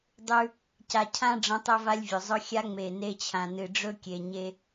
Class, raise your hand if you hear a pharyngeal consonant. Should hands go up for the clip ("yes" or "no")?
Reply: no